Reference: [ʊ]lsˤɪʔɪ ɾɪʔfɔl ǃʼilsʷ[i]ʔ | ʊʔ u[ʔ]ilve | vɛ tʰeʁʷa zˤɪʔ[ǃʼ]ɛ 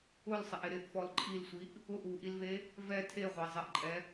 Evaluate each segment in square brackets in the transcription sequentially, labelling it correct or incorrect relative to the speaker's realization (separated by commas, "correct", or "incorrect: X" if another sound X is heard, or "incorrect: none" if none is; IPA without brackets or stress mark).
correct, correct, correct, correct